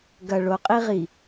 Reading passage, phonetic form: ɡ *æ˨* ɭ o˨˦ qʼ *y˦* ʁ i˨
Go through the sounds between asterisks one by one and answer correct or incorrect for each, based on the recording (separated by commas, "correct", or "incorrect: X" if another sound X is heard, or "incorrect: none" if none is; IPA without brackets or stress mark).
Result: incorrect: ɐ˨, incorrect: i˦